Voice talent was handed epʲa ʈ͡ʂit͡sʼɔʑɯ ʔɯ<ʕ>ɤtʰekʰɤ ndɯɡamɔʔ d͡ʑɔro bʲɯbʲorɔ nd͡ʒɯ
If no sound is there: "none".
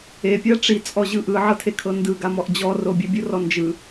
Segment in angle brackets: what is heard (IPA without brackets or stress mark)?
ʕ